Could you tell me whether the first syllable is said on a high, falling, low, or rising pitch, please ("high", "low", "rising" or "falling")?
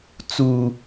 high